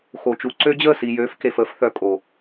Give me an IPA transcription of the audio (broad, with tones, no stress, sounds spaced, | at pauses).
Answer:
x o˨ t͡ʃ u˨ ǀ ø˧ d͡ʑ əː˦˨ s i˨ j øː˨˦ f k e˨ f əː˧ f θ œ˨ kʼ o˨